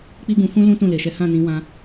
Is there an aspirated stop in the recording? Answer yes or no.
no